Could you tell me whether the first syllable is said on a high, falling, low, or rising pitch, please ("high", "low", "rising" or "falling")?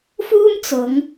high